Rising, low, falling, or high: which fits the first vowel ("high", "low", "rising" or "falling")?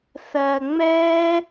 low